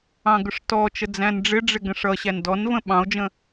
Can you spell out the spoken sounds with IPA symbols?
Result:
ɑ̃ɡʊʂtɔt͡ʃə d͡zæ̃nɖ͡ʐɪɖ͡ʐɪ ɡə̃ʂʌɕæn dɔnvə̃ ɓɑ̃o̯d͡ʒə̃

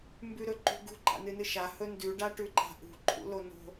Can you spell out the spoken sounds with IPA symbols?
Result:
mbʉɾɵǃṳɡṳ ɡ͡ǃa̰nɨnɨʃa hɵndʉ ɖaʈʉǃa̤ʔṳ ǃʰṵlono̤

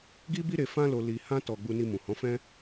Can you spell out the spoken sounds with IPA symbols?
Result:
ɡi˦bi˦ɾe˧ fã˦lo˧ li˧hã˦ tɔ˧ ɡ͡bu˧ni˧ mũ˨hɔ̃˨˦fɛ̃˦

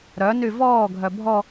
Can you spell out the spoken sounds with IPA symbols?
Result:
ɾœ nyvɔː ɡʱœbʱɔ

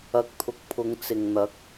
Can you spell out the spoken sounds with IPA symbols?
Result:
ɐ˨k̚t̪ʰʊ˨k̚pʰʊ˨˧ŋ t͡sɪ˨ŋn̪ɐ˨˥k̚

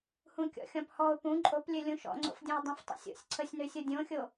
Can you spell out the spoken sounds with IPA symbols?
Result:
hũkʲɔ̰xʲɔ̃phɔʊ̯ pũ ǃʼoplʲø lʲũʃɔ̰ŋ͡ǀo̰fdʲõɪ̯ dˤɛ̃ftˤo̰sʲo̰sʲ ǀʰəsʲnøsʲo dʲõxʲo

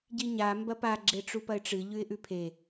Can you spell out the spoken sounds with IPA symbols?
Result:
ɟiɲa mbɐpa ɡ͡ǁeʈ͡ʂupɐɪ̯ʈ͡ʂɨ ʎʉɪ̯ʔʉpʰe

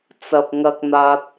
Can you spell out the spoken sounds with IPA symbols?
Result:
t͡sɐ˨p̚ŋɐ˧k̚n̪aː˧t̚

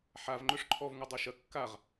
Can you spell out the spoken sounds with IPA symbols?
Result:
ħav ŋ͡ǃɵʂǃʰɔv ŋudˤuʃɐ kːaʁ

